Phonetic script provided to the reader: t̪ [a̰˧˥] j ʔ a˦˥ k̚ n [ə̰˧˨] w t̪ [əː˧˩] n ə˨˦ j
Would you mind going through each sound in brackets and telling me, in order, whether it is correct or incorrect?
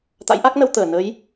correct, incorrect: ə˧, correct

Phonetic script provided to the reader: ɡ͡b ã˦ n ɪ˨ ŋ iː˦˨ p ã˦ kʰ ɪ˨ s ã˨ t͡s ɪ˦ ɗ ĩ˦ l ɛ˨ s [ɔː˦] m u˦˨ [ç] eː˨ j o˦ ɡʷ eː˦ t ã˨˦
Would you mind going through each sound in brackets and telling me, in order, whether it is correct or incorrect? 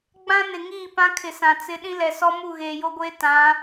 incorrect: ɔ˦, incorrect: ɣ

